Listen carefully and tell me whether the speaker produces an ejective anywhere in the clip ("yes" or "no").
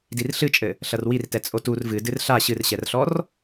yes